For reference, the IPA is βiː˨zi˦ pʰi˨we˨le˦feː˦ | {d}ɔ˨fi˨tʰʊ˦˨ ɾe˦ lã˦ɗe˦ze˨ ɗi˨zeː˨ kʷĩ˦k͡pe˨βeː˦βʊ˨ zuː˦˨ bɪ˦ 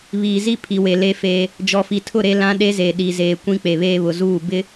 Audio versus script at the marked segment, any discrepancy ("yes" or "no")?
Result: yes